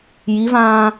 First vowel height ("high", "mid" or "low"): high